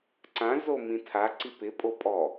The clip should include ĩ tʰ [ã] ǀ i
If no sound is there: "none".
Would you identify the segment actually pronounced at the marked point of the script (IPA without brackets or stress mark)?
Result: a